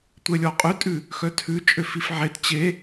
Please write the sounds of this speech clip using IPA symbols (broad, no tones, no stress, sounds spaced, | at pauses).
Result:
tʷ ɛ lʲ ɔ qʼ ʉ tʼ ʉ | x œ tʰ ʉ t͡ʃʼ ø f i f ʕ e t t͡ɕ e